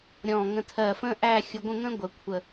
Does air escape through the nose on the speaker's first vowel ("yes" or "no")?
yes